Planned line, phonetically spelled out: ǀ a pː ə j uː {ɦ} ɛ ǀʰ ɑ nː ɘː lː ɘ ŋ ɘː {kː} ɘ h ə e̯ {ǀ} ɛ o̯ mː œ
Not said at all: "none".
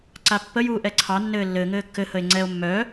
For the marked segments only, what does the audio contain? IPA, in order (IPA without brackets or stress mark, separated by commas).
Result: ʔ, kː, ŋ͡ǀ